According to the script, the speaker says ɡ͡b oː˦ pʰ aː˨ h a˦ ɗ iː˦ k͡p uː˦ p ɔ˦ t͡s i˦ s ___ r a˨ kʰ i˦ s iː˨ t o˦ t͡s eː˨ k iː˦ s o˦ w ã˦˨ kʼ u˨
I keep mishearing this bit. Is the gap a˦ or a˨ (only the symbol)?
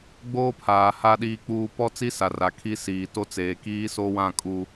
a˨